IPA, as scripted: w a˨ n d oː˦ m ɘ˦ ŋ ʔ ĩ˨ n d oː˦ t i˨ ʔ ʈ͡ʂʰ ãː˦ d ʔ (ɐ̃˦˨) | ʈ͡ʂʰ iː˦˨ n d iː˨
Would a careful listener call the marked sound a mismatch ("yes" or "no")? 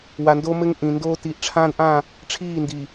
yes